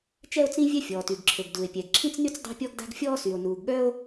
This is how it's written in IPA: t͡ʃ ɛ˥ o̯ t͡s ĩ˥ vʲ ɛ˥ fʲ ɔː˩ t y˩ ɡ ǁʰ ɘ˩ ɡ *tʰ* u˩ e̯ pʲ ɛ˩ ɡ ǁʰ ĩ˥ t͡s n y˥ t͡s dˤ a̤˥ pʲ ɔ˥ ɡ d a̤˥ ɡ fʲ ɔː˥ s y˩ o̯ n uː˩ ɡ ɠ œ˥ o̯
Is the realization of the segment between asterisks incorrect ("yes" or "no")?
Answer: yes